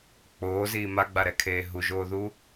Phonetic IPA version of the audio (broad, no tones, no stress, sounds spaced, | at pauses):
k͡p oː z iː m a ɡ͡b a ɾ ɛ kʰ eː ɦ u ʒ oː ð u